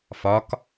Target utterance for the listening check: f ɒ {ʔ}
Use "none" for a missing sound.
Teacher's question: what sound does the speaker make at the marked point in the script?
k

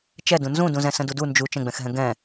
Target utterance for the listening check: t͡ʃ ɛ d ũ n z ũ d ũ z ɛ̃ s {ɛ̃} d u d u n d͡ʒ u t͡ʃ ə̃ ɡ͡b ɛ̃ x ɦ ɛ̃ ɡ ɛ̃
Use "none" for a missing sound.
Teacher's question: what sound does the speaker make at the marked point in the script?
ə̃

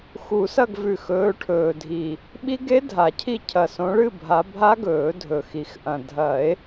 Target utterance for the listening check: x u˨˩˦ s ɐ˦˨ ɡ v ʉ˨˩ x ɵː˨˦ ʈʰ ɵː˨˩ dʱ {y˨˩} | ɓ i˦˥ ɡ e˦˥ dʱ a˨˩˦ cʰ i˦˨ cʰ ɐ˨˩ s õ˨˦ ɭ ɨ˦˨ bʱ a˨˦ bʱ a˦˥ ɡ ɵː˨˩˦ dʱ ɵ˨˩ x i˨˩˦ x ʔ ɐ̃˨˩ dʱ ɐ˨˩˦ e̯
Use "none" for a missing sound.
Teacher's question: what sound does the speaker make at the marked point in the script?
i˨˩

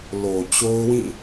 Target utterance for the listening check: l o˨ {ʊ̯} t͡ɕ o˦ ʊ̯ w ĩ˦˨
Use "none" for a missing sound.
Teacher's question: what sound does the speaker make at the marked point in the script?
none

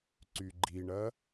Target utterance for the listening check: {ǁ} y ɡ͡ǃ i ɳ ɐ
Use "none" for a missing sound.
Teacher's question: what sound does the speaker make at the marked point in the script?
ǀ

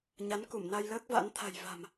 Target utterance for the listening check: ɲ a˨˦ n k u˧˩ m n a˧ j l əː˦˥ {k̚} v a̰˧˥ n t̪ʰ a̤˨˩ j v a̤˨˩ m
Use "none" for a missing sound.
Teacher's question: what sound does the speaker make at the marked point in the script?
k̚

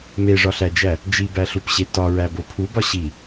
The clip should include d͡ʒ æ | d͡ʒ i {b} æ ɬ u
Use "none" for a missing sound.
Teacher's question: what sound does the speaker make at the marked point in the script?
b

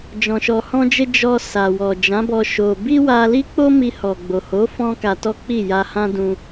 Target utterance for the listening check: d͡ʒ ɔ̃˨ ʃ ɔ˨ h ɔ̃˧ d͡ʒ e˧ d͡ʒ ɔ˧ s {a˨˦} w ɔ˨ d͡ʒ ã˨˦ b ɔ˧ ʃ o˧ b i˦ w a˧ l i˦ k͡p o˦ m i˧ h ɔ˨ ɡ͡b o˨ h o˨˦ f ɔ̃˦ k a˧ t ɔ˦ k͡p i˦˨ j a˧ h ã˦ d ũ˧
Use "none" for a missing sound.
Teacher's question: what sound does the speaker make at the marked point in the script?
a˨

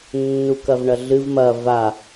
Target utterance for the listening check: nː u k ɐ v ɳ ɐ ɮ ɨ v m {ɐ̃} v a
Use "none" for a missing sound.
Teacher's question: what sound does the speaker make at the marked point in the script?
ɐ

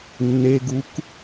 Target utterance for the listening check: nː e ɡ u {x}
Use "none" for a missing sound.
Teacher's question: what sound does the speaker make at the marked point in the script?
k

